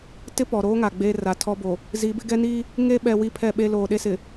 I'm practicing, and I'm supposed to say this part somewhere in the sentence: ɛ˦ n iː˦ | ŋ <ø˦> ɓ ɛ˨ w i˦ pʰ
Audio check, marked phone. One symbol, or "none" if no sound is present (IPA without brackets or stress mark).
e˦